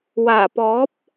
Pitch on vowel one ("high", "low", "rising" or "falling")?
low